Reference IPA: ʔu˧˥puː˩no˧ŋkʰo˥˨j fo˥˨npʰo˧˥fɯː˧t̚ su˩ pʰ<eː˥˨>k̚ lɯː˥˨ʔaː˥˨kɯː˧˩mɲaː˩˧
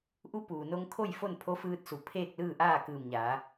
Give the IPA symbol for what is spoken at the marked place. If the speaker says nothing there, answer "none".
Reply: eː˥˨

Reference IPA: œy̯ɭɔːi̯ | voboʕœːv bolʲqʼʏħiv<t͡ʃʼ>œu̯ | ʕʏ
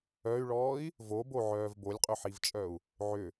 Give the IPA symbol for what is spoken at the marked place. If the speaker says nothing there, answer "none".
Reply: t͡ʃʼ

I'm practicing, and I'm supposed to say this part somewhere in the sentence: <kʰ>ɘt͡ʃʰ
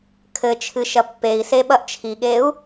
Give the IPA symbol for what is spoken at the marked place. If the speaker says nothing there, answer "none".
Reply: kʰ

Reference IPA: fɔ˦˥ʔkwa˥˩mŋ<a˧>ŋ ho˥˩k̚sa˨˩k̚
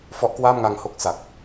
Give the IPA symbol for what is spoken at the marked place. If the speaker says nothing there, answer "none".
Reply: a˧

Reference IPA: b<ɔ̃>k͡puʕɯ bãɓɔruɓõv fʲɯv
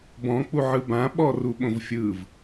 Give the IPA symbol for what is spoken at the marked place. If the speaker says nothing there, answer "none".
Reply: ɔ̃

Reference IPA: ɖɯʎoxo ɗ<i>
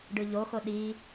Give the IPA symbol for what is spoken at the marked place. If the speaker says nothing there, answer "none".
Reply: i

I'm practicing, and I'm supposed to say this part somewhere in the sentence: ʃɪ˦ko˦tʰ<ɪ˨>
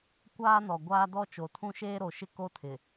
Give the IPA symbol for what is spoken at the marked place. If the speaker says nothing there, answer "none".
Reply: ɪ˨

